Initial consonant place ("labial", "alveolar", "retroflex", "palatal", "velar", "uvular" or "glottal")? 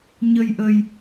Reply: palatal